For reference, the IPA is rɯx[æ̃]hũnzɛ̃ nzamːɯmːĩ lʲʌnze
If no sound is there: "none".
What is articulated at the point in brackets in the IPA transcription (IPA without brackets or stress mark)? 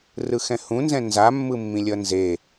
ɛ̃